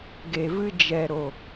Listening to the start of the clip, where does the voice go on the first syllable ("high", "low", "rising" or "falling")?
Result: low